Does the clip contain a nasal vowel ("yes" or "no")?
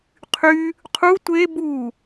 no